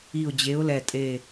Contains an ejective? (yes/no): yes